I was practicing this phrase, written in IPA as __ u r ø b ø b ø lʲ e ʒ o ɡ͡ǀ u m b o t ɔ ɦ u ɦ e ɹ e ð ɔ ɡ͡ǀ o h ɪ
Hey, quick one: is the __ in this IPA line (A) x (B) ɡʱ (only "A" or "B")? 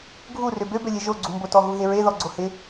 B